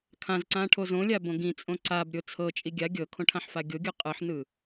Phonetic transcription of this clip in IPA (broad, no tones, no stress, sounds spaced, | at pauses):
kʰ ã z ǀ ã ʈʰ o z õ lʲ a b õ ɡ ĩ t͡sʼ õ ǀ a b ɾʲ o t͡sʰ ɤ t͡ʃʼ i ɡʲ a ɡʲ ɤ kʰ õ ʈʰ ã ħ f a ɡʲ o ɡʲ ɯ qʼ ɯ ħ n ɯ